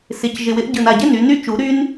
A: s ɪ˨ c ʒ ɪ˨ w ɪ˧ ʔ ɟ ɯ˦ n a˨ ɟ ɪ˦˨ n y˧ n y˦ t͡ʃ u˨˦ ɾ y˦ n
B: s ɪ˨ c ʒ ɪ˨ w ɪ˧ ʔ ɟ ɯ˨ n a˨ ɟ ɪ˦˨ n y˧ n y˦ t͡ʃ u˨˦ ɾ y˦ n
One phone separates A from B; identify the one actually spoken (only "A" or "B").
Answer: B